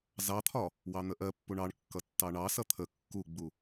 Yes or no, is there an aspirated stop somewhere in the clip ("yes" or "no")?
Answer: yes